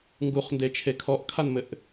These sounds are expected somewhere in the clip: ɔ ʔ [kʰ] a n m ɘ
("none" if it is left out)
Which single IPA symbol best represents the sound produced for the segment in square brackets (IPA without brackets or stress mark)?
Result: kʰ